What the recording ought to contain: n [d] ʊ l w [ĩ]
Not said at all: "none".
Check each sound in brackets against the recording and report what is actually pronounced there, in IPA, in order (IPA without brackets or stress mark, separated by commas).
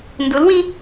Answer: d, ĩ